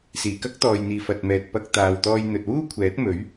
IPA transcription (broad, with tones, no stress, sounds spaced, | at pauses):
s iː˨˩ k ɐ˥ k̚ t̪ ɔː˨ j n̪ iː˨ f ɐ˨ t̚ m ɛː˨ t̚ p ɐ˧ k̚ t̪ aː˨ w t̪ ɔː˧ j n̪ ɵ˨ t̚ w uː˥ kʷʰ ɛː˨˥ t̚ m ɵ˨˥ ɥ